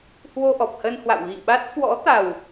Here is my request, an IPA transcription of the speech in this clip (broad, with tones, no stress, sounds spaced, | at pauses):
h w o˧ ʔ ɔ˨˩ p̚ h ə˧ n h w a̰˧˨ w ɣ ḭ˧˨ ɓ a˦˥ t̚ k w ɔ̰˧˥ t̪ a˨˩ w